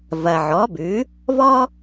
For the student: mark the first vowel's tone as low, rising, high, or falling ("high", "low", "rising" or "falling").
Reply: low